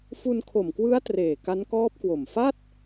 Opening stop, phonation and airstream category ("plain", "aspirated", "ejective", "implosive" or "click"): aspirated